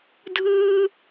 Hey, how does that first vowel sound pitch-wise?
high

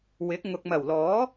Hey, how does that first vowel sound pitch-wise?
rising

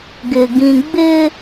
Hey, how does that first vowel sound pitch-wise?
high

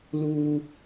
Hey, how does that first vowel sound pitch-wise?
low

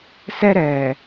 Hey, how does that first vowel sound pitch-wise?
high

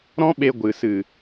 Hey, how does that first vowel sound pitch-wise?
high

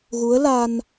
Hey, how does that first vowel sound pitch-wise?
rising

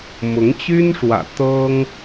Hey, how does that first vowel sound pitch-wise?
rising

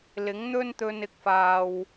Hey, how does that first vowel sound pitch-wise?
rising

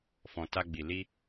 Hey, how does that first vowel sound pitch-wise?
low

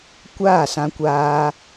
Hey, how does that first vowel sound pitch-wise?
falling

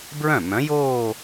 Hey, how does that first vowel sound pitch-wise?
falling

